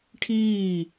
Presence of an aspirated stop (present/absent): present